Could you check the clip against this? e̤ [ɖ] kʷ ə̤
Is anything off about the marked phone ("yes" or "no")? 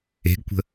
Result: yes